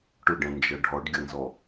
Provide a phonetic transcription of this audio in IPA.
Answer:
ʈʊɖɛ̃nd͡ʒʌ ɖʱɔɖɡʲʌnzɔ

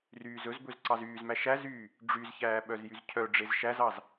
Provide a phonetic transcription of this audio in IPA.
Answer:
ryːzɵzbɵz ǀɑzyːzmæ ʃæzyː | ɖ͡ʐyzçæː ɓœzjyzcʰœɖ͡ʐez ʃæzɑz

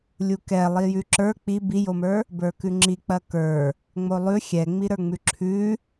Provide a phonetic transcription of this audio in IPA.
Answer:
lʲukɛ lˠijʉǁə˞ k͡pi bijomə˞ | bə˞kʉŋ͡ǁik͡pɐ kə˞ | ŋ͡molˠʉ xʲɛŋ͡miɾə˞ŋ͡mʉ ǁʰʉ

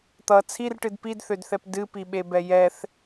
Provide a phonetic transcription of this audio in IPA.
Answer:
t̪ʌ t͡sʰirʈɨd pidθødθɛp dɨpiɓebɛ jɛθ

